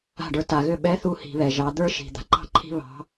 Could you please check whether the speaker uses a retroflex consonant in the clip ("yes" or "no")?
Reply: yes